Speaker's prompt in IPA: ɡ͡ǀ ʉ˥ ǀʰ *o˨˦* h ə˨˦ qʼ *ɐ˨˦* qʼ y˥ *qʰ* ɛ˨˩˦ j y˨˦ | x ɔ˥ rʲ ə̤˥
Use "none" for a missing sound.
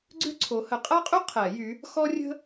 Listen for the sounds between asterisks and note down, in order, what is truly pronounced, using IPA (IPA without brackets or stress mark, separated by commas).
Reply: o˨˦, ɐ˥, qʰ